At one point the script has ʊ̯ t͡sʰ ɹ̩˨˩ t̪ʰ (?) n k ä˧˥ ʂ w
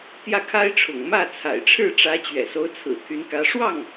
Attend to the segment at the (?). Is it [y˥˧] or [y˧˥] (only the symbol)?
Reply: y˧˥